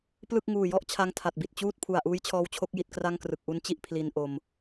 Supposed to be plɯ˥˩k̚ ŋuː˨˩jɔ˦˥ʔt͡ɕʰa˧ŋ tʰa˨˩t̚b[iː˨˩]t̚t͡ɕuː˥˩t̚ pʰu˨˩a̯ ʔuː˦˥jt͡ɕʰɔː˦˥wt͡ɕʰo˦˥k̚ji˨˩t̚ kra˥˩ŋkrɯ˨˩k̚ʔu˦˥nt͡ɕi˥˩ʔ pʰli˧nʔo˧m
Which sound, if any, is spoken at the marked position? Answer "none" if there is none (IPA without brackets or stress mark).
i˨˩